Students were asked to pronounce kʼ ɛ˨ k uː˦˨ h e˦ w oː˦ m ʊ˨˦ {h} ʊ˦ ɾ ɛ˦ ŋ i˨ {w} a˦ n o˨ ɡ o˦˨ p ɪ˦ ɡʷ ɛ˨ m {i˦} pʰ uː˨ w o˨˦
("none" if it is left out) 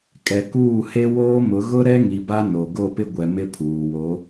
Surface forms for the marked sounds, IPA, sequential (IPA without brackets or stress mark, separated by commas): ɣ, b, ɪ˦